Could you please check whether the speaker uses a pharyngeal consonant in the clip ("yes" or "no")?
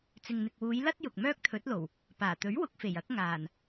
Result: no